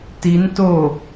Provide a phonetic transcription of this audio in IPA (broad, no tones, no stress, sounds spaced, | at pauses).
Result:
t i n t o